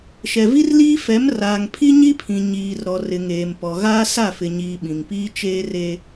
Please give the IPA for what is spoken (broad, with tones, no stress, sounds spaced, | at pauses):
ʃ ɛ˨ v i˦ r l iː˦ f ɛ˨˦ m r aː˨ ŋ pʰ i˦ ɲ i˦ pʰ ĩ˨ ɲ iː˨ r ɾ ɔ˨ r ɪ˨ ŋ eː˨ m p ɔ˨ ɣ aː˦ s a˦˨ f ɪ˨ ɲ iː˨ ɓ ĩ˨ ŋ p iː˦ t͡ʃ eː˦ r e˦